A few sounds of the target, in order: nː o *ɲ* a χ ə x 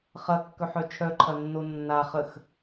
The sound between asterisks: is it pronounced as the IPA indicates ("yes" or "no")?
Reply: no